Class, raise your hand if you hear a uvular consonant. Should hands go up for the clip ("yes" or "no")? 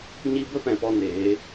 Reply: no